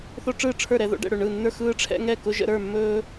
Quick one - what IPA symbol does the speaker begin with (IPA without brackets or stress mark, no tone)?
θ